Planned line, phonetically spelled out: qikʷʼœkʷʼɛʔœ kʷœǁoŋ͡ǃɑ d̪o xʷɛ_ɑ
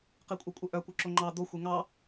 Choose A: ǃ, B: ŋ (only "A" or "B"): B